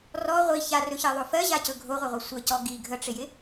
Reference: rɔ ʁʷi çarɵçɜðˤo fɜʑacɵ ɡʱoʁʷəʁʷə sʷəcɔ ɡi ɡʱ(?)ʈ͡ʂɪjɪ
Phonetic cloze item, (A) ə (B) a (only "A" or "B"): A